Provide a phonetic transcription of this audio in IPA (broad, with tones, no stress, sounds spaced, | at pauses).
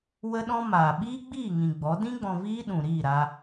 w ə˦ ɗ ɔ̃˦ m aː˨ ɓ iː˦ ɡ͡b iː˦˨ ŋ ĩ˨ ɡ͡b ɔ˨˦ d ĩ˦ ɡ͡b ɔ̃˧ v iː˦ ɗ ũ˨ ɾ iː˦˨ ɾ aː˧